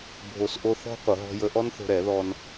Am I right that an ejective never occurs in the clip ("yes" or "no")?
yes